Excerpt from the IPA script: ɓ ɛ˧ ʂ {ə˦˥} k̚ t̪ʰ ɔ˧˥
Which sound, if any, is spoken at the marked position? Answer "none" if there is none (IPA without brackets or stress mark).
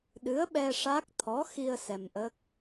a˦˥